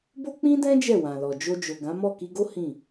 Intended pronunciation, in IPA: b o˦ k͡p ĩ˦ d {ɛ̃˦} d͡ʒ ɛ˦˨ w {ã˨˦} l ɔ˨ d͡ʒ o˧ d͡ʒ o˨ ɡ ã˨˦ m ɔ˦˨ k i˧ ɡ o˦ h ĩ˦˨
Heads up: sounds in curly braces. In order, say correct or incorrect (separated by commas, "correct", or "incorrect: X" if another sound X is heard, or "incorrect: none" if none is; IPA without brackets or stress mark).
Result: correct, incorrect: ã˨